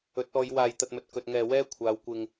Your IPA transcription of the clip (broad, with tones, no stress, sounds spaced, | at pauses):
ɵ˨˥ t̚ ɔː˨˧ j w aː˨ j t̪ ɐ˨ t̚ m ɵ˨ t̚ k ɵ˨ t̚ ŋ ɛː˨ w ɛː˥ kʷʰ aː˨˧ w kʷ ɪ˧ ŋ